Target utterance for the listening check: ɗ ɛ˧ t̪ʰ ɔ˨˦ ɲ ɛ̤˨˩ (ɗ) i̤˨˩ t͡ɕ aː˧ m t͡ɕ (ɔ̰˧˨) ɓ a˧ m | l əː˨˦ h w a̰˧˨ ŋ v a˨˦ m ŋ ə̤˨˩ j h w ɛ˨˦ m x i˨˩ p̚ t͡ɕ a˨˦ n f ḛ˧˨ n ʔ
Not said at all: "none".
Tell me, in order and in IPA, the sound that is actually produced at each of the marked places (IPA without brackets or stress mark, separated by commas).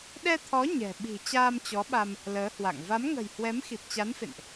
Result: ɓ, ɔ˨˦